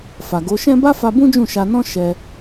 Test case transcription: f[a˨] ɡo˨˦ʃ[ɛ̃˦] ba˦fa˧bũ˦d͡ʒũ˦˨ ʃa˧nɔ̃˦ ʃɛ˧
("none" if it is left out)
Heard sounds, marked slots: a˨, ɛ̃˦

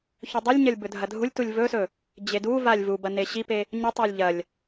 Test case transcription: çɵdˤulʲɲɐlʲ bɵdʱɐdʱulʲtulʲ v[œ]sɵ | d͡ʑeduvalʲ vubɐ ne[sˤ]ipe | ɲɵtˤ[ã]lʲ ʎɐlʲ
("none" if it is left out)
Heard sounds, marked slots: ɵ, ɕ, a

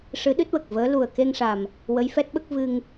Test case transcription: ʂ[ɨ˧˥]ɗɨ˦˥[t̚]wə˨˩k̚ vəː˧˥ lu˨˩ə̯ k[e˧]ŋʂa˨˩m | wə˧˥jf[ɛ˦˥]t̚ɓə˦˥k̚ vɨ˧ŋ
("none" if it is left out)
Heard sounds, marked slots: ɨ˧˥, t̚, e˧, ɛ˦˥

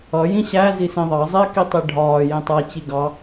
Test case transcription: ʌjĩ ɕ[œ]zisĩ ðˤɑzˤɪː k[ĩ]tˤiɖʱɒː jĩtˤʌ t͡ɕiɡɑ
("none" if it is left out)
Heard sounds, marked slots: æ, i

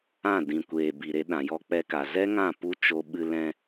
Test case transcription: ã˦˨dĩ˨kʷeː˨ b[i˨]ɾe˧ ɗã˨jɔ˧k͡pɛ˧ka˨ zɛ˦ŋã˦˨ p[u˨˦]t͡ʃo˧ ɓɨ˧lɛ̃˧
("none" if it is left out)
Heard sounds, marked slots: i˨, u˦

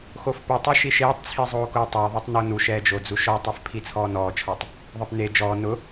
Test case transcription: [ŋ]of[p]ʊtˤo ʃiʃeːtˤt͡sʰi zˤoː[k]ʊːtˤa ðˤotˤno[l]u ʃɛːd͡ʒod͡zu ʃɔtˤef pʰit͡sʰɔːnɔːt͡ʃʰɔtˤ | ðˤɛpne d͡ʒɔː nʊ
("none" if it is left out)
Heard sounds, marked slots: x, p, k, n

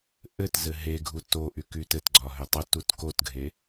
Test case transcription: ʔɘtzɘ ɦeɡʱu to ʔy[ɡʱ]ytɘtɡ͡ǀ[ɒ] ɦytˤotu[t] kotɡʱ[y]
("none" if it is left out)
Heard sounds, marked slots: k, ɒ, t, e

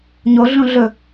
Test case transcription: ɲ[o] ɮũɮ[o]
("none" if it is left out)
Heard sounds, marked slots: o, ɵ

